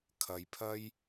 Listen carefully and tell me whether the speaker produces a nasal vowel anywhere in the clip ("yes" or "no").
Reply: no